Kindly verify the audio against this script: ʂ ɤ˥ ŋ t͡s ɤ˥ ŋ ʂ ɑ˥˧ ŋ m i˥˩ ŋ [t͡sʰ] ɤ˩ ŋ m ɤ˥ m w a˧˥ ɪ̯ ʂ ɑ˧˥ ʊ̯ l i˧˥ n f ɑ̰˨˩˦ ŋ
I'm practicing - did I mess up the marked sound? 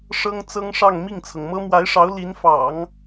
no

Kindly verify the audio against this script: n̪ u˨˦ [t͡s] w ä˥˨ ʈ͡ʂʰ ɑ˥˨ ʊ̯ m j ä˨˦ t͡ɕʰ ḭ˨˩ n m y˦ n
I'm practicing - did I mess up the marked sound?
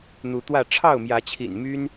yes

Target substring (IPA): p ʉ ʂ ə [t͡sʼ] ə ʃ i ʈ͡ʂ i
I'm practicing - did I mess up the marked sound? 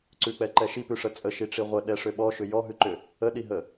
no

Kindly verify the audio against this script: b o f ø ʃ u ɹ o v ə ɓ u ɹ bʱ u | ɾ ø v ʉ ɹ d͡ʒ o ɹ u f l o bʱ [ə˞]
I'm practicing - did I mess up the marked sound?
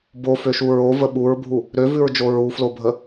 yes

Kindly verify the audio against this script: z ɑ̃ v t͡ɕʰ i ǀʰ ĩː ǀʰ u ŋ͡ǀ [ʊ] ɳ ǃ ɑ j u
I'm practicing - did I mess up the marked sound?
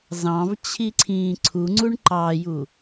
yes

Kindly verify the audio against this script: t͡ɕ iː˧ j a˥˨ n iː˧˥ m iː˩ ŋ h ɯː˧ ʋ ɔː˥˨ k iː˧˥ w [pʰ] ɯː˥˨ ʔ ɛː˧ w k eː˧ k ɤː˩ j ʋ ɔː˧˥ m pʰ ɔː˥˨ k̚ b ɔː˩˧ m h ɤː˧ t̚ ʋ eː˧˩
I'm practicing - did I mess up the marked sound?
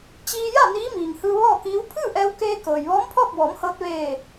no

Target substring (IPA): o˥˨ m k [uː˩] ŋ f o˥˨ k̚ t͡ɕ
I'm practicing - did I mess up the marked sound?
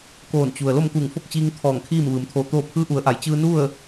yes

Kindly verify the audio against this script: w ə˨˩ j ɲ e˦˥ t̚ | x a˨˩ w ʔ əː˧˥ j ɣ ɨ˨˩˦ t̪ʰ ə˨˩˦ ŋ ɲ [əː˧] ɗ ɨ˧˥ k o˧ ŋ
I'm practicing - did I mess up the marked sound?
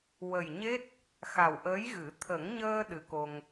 no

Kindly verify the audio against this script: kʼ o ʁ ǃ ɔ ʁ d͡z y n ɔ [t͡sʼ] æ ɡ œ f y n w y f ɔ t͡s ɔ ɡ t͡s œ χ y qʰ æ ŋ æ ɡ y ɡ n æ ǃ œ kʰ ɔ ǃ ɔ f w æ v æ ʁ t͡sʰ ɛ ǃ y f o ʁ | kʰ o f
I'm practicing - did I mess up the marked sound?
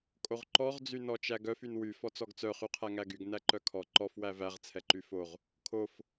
yes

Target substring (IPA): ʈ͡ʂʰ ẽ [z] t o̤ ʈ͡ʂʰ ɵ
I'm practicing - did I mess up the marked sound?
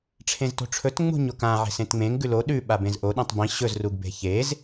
no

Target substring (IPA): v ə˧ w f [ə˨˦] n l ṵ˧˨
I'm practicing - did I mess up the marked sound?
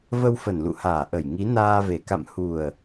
yes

